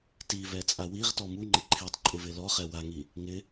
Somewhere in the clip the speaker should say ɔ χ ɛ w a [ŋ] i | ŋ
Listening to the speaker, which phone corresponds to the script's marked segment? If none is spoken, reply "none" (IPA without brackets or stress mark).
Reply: ŋ